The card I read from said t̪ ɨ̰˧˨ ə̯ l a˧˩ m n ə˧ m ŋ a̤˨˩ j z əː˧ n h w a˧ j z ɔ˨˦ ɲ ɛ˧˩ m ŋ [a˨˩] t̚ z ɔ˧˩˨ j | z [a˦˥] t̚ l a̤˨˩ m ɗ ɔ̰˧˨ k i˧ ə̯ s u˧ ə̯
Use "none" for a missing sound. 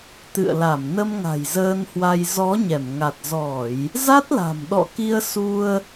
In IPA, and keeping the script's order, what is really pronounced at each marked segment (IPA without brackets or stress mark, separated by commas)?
a˨˩, a˦˥